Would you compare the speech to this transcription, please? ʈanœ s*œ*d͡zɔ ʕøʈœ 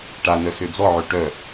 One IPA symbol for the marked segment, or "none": ø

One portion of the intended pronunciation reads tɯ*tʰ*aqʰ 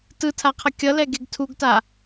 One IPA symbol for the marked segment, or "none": tʰ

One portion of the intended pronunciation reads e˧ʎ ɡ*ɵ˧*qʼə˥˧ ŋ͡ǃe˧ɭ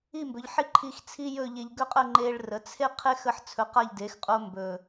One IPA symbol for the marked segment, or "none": ɵ˥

